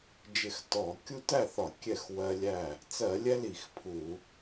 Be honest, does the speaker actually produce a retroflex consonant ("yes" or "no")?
no